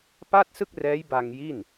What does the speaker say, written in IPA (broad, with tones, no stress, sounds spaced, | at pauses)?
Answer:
p a˥˩ t̚ s ɯ˥˩ k̚ r ɛː˦˥ j b a˧ ŋ j i˥˩ n